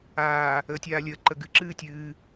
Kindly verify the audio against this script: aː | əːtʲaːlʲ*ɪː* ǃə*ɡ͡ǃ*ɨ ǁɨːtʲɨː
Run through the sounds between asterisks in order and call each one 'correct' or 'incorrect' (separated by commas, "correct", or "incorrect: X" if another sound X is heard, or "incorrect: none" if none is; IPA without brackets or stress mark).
incorrect: əː, incorrect: ɡ